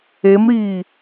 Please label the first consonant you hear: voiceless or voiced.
voiced